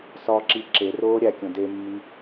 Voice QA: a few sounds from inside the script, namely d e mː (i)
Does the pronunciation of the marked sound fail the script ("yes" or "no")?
no